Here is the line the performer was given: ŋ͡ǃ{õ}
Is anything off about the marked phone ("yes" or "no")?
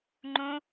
no